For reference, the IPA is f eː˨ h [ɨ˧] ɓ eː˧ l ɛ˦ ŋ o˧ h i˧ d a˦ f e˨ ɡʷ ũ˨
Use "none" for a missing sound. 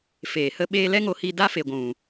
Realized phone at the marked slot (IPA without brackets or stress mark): ə˧